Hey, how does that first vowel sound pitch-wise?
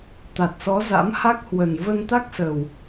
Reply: low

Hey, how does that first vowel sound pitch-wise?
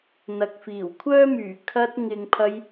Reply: low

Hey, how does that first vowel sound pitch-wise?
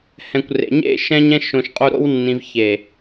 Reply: low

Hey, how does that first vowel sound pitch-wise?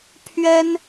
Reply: high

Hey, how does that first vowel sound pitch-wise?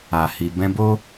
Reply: low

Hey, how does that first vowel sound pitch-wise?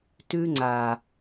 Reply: high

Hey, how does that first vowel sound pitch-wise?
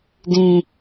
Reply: low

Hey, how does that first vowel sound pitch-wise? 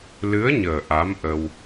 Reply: rising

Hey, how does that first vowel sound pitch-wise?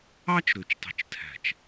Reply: high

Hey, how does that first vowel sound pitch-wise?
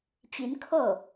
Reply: rising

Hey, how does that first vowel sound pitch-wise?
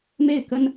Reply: falling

